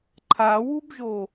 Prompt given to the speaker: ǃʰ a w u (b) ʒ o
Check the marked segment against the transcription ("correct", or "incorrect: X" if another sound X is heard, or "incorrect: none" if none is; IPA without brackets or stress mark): correct